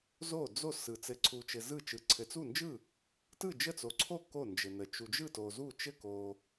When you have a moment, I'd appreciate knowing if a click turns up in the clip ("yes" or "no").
yes